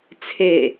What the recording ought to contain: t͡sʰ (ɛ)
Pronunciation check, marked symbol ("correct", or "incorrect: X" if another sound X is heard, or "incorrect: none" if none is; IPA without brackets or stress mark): incorrect: e